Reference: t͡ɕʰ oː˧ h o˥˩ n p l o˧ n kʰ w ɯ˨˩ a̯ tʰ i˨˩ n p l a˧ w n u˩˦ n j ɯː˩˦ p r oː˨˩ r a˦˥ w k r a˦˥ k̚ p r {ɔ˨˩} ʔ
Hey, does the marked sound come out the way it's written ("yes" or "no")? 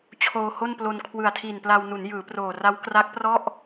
no